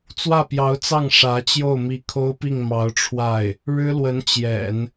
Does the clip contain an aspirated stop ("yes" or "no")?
yes